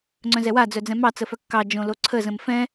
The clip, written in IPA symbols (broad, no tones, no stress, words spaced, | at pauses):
ŋ͡ǀœ̃zɛwa d͡zœd͡zɛ̃mɑ t͡səfœkːɑ d͡ʒõloǀʰə zə̃mfɛ̃